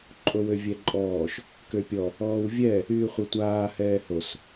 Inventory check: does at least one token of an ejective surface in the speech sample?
yes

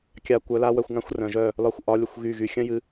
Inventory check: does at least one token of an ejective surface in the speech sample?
no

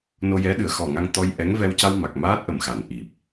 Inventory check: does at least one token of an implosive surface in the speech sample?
yes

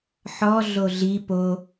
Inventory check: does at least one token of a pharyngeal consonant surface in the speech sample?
yes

